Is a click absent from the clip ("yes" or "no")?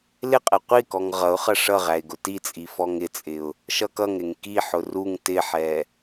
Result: yes